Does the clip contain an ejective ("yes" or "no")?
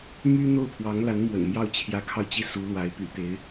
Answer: no